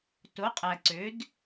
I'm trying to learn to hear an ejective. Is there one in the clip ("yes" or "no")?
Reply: yes